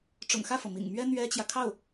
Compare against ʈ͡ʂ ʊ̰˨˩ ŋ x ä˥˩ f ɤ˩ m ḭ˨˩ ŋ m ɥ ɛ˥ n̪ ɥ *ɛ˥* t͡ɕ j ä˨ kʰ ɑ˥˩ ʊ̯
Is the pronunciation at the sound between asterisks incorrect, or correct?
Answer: correct